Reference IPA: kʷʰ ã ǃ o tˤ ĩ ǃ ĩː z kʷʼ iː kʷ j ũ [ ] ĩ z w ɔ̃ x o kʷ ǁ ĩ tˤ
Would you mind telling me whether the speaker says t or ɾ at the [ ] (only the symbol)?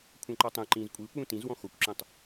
t